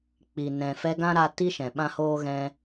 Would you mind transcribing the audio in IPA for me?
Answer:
k͡pi˨ nɛ̃˨fɛ˧ɡã˦ ɾa˦ ti˦ʃɛ̃˨ɓã˦hoː˦ ɣɛ̃˧

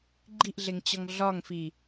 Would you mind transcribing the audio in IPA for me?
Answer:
ɡ͡ǃiʔɮeŋt͡ɕɒŋ ɮɒŋfi

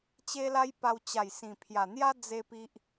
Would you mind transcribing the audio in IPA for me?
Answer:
t͡ɕe˦la˦jpa˧w t͡ɕa˨˩jsĩ˨˩pʰja˨˩n̪ja˦ d͡ze˦pi˦ʔ

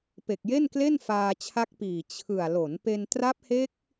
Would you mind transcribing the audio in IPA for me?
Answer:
pe˨˩k̚je˥˩nkle˥˩n faː˧t͡ɕʰa˦˥k̚piː˨˩ t͡ɕʰɯ˨˩a̯ lo˩˦npe˧n tra˦˥p̚he˦˥k̚

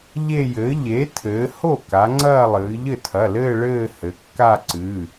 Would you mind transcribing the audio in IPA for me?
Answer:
ʎe˥˧jɘː˩˥ ʎe˩˥ tʰɘː˩˧ ho˥˩ka˩˧ ŋ͡ǀɐː˥˧lˠɨː˩˧ ʎɘ˥˩tʰɐ˩˧˩lɘː˥˧ ɭɘː˥˧hɘ˩˧kːa˥˧ǀɨː˩˧˩

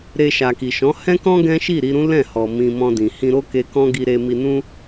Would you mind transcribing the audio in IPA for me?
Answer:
ɾe˧ ʃa˨ki˨ ʃɔ̃˨˦ hɛ̃˦kɔ̃˦ ɡɛ̃˦ʃi˦˨ɾi˧ɾũ˦ lɛ̃˦˨hɔ˨ mĩ˧mɔ̃˧dĩ˨ hĩ˧ɾo˦ke˧ kɔ̃˦ɡi˧ ɾe˧mi˧nũ˦

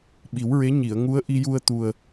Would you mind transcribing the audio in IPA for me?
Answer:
ɓi˨˩˦wɹe˧˥ ɲi˨˩˨ə̯ŋu˧˥ə̯ ʔi˧ju˧ə̯t̪u˨˩ə̯

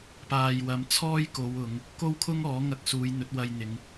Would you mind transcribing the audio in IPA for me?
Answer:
paː˨jwɐ˨˧mt͡sʰɔː˥j ko˨˧wʊ˨˧ŋ | ko˥wkʰʊ˥ŋɔː˨˥ŋɐ˧k̚ suː˨˧jn̪ɵ˨˥t̚wɐ˧jn̪ɪ˨˧ŋ

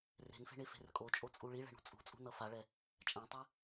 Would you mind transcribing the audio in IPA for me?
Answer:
re̤nfe̤ɳefe̤r kʼot͡ʃʼot͡sʼu ɭiɭɛ̤ɳṳ t͡sʼṳt͡sʼṳnʌ faɭɛ | t͡ʃʼãtˤɛ

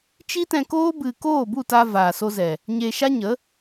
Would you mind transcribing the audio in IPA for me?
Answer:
t͡ʃi˦tɛ̃˧koː˦ bɨ˨ koː˦˨bu˦˨ta˧ vaː˨so˧zɛ˨ | ɲe˧ʃa˦ɲə˨˦

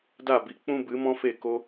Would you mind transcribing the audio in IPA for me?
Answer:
da˦˨ bi˨k͡pũ˦ bɨ˨˦mɔ̃˦fe˦˨ ko˧

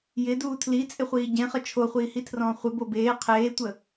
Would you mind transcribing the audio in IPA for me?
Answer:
jɪduː tʰlit͡sʼɪχʷiː ɟẽχə t͡ʃʰoχʷiːhitʰrɔ̃ː χʷɪbo beː qʰeːtʷə

